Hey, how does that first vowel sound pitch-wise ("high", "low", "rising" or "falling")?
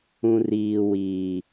high